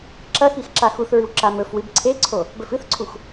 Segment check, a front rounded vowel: absent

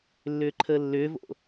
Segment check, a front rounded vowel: present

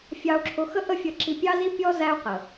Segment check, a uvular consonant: present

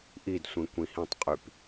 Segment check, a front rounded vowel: present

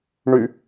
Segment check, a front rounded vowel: present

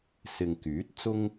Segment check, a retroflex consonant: absent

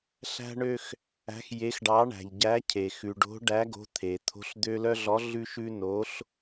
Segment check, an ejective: absent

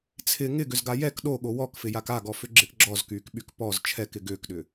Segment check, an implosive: present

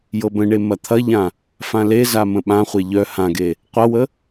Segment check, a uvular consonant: present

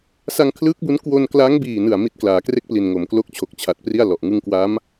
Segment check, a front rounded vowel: absent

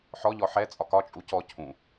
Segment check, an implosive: absent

